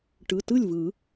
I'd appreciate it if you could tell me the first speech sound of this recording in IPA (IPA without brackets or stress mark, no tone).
ʈ